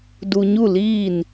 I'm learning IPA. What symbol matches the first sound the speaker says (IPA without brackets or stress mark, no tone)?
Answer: d